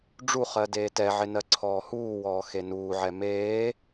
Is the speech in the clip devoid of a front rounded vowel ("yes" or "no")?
yes